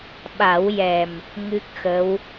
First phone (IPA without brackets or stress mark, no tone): ɓ